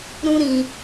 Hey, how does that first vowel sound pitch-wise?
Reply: high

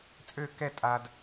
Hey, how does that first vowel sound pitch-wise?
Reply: falling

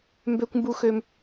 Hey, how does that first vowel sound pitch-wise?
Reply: high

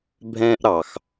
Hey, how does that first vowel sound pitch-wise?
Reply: high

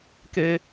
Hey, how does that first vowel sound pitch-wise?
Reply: high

